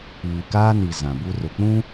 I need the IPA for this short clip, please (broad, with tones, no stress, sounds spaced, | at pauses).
iː˨ k aː˦ n i˨ z ã˨ b u˦ r ʊ˨ k͡p ũ˦